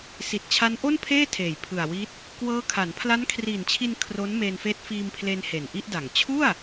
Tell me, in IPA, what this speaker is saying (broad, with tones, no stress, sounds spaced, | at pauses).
s i˨˩ t̚ t͡ɕʰ a˦˥ n ʔ o˥˩ n pʰ eː˥˩ tʰ eː˨˩ j pʰ ɯ˨˩ a̯ w i˦˥ t̚ | k w ɤː˦˥ kʰ a˩˦ n pʰ l a˦˥ n kʰ r iː˨˩ n t͡ɕʰ i˧ n kʰ r o˦˥ n m eː˧ n f eː˦˥ t̚ f iː˧ m pʰ l e˧ n h e˨˩ n ʔ i˥˩ ʔ d a˨˩ ŋ t͡ɕʰ u˥˩ a̯